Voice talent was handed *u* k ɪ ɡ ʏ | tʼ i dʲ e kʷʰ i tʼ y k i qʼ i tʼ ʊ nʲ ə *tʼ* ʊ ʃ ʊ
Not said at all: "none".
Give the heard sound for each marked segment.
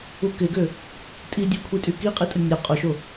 u, qʼ

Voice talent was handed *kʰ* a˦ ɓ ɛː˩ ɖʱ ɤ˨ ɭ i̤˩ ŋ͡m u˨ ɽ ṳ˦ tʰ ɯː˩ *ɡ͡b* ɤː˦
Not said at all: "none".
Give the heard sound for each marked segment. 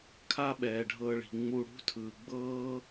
kʰ, ɡ͡b

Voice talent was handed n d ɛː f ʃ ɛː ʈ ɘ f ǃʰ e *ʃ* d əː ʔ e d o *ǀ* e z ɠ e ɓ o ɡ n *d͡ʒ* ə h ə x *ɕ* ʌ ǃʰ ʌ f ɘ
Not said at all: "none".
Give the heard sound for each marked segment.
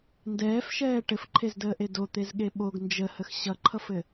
z, t̪, d͡ʒ, ɕ

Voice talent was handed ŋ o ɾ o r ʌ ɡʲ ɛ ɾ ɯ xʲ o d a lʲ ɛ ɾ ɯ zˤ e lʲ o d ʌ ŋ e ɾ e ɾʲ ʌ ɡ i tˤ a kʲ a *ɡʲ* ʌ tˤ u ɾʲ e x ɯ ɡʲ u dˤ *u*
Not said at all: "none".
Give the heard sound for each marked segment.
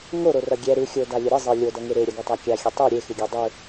xʲ, ɯ

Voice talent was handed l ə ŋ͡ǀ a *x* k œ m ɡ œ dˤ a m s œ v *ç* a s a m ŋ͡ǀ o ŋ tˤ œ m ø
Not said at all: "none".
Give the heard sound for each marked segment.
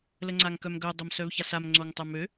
ŋ, ç

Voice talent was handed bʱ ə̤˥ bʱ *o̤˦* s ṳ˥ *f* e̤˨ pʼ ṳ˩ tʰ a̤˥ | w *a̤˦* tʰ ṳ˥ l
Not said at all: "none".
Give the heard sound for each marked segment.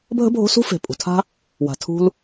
o̤˦, f, a̤˨

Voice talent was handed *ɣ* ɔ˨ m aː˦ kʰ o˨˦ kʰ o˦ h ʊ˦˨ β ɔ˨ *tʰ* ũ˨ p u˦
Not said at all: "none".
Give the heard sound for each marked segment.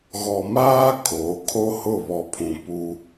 ɣ, pʰ

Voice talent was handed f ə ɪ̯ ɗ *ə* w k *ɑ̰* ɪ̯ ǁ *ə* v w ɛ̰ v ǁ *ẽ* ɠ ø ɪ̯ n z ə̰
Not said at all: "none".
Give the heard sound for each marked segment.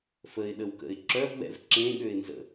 ə, ə̰, œ, ẽ

